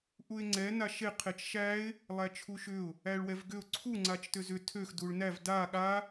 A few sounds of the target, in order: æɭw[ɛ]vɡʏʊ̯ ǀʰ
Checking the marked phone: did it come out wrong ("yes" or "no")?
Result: no